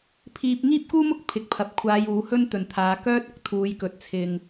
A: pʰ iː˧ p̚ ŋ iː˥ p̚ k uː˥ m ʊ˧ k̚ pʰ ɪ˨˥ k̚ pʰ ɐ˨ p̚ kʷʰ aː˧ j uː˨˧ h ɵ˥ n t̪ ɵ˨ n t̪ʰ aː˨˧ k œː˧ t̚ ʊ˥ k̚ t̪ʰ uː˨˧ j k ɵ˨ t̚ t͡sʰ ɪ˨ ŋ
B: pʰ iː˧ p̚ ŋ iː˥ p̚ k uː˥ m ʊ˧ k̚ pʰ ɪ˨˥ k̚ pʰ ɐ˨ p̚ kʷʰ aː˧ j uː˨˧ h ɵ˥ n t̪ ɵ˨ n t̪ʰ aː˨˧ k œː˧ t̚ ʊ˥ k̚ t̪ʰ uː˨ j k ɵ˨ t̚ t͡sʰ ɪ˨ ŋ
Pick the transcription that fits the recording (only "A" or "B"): A